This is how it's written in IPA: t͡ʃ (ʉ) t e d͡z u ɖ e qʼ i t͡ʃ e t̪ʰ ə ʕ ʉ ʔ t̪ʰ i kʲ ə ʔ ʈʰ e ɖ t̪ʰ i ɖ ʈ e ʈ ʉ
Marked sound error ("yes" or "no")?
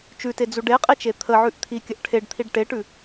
no